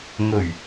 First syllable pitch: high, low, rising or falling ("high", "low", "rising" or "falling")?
low